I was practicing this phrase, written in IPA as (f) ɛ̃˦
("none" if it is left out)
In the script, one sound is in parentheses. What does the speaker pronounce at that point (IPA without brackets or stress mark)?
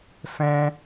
f